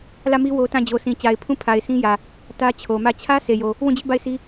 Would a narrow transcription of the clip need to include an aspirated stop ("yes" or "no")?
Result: yes